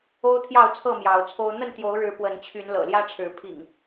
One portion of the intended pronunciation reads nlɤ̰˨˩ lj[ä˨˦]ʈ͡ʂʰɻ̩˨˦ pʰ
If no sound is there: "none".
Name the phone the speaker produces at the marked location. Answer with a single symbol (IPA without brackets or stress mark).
ä˦